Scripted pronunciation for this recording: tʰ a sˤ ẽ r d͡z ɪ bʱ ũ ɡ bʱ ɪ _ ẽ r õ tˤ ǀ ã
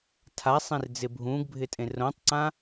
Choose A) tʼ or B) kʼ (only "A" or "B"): A